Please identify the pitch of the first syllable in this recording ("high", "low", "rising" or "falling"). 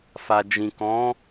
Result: low